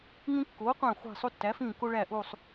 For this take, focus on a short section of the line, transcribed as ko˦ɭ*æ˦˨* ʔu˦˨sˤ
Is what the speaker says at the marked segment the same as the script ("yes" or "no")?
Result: yes